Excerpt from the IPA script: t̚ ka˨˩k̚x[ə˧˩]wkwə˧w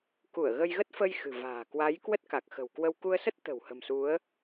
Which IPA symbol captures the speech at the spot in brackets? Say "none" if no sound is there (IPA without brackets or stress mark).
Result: ə̤˨˩